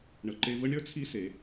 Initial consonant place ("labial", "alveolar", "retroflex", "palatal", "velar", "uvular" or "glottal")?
retroflex